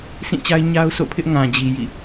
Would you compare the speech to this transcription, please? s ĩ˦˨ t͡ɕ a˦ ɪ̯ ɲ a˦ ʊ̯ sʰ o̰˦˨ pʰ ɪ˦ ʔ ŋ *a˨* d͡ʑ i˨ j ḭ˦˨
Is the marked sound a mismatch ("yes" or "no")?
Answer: yes